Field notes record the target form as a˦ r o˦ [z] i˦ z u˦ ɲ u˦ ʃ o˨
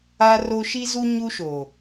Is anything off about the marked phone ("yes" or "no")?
yes